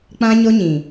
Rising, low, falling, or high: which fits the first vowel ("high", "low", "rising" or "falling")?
high